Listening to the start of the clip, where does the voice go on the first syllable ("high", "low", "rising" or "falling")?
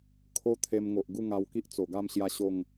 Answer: high